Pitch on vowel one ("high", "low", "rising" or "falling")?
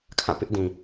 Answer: falling